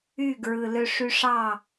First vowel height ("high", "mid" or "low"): high